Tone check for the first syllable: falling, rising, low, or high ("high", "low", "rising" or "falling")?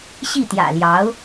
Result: falling